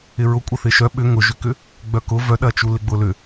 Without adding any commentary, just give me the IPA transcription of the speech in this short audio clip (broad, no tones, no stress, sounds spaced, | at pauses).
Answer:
ɪ ɹ ʊ kʷʼ ɐ θ ɪ ʃ œ ɓ ʏ ŋ ʊ ʒ ʏ k ʏ | ɡ͡b œ k ʊ v œ ɗ ɐ t͡ʃ u l ɪ ɡ͡b ʊ l ʏ